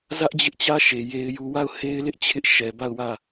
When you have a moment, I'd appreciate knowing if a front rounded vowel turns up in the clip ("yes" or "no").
no